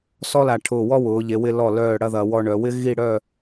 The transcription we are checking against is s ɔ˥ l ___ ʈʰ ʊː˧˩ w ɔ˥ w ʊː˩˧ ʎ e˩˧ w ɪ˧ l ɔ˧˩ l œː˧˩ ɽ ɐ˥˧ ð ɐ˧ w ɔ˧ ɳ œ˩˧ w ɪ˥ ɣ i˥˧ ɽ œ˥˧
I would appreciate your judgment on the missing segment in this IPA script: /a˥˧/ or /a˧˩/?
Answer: a˧˩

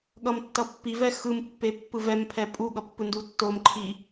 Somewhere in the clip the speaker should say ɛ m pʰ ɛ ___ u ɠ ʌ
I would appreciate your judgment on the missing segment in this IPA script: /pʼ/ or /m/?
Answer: pʼ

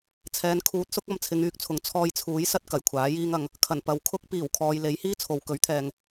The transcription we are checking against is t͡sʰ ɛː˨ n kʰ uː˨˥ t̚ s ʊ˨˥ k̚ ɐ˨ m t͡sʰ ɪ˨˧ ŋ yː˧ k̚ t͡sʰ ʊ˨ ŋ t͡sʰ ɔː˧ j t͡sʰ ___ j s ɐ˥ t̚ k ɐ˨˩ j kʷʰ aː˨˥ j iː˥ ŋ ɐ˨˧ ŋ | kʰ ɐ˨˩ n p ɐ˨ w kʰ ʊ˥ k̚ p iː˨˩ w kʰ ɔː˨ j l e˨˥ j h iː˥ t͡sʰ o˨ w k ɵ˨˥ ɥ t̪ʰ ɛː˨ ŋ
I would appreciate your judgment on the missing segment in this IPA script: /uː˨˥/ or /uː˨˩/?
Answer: uː˨˥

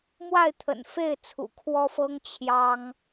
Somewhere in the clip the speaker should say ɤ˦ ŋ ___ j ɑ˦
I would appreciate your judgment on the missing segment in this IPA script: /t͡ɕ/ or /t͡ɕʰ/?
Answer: t͡ɕʰ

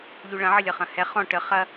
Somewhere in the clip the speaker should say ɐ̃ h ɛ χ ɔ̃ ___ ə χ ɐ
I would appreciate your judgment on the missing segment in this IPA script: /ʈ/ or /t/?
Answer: ʈ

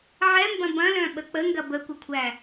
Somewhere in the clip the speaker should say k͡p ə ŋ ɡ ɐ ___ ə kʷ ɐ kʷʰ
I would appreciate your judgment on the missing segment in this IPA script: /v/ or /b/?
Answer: b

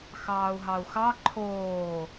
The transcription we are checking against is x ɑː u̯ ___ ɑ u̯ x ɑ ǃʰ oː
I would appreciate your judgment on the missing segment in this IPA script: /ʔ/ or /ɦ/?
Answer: ɦ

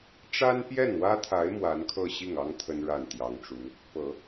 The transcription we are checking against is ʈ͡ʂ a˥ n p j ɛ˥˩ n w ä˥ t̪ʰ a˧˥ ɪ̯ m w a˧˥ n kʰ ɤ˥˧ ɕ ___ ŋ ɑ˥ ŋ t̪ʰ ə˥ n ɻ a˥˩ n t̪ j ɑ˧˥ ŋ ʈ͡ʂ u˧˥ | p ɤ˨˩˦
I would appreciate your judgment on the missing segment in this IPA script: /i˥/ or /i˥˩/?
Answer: i˥˩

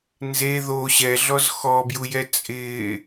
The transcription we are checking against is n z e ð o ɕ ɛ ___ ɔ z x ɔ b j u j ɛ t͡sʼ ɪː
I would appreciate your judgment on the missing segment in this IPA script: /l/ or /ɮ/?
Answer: ɮ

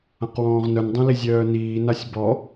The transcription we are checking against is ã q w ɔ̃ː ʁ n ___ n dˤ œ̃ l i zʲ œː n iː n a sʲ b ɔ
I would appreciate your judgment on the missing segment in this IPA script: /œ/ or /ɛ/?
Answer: œ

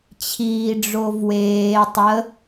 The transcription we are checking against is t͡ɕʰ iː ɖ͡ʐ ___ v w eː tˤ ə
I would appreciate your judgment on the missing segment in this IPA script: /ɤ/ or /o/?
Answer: o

